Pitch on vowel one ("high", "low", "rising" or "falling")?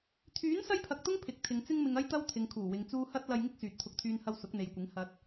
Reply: rising